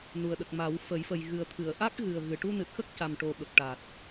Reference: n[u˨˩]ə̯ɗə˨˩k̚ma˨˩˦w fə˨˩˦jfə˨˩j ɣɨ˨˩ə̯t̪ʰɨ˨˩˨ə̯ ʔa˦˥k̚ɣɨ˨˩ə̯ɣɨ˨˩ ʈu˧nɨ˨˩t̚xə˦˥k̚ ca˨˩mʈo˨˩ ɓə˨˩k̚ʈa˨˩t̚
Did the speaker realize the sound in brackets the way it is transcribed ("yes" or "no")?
yes